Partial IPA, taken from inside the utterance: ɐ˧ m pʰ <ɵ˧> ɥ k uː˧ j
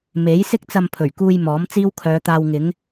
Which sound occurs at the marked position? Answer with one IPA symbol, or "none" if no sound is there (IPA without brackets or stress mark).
ɵ˨˩